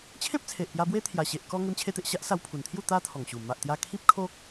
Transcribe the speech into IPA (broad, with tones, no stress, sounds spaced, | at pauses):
t͡ɕʰ ẽ˦ p̚ t͡sʰ e˨ ʔ p j a˧ b w e˦ t̪ʰ j a˨˩ ɕ e˨ ʔ k ɔ˧ ŋ e˧ m t͡ɕʰ e˧ t̪ e˨ ʔ ɕ a˦ ʔ s a˧ w pʰ u˨˩ n t̪ʰ j u˥˧ t̪ a˦ t̪ʰ ɔ˨˩ ŋ ɕ u˨˩ m a˨ ʔ t̪ j a˧ kʰ i˦ p̚ kʰ o˦ k̚